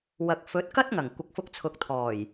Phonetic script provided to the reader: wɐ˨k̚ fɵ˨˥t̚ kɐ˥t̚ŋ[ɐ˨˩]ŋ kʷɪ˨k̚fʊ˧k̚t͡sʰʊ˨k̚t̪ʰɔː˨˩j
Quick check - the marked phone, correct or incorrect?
correct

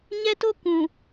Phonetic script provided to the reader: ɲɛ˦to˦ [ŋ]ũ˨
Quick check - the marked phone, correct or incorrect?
incorrect: k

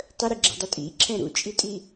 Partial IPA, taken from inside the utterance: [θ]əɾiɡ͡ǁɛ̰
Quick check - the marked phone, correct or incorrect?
incorrect: tˤ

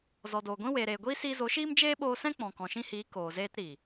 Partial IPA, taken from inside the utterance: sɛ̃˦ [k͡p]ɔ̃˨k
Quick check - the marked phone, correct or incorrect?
correct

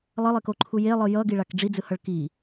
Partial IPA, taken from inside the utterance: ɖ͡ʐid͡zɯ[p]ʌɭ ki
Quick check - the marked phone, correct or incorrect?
incorrect: h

